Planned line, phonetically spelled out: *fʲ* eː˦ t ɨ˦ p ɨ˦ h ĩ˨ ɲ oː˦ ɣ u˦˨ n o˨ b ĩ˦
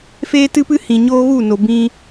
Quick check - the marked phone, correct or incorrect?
incorrect